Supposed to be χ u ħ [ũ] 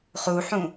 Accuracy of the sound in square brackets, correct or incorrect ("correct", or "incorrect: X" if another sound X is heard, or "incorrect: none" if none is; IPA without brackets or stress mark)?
correct